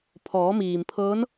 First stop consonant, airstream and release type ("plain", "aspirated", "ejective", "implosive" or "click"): aspirated